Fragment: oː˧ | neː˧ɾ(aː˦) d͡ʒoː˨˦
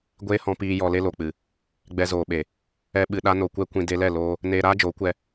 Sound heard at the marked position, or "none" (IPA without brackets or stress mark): aː˦